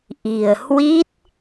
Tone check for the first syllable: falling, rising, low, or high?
low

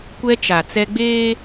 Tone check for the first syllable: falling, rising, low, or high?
high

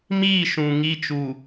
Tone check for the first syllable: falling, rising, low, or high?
falling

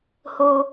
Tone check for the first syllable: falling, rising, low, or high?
high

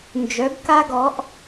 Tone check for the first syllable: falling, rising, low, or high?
rising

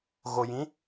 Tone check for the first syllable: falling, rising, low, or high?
low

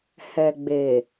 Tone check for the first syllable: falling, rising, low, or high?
low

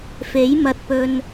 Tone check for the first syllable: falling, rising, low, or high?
rising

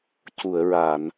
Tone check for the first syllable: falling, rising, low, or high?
low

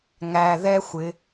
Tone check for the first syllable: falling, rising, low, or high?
high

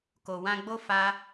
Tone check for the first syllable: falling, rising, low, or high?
low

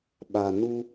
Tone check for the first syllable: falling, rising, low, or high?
low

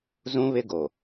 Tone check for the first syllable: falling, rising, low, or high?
high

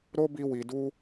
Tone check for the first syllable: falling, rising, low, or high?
high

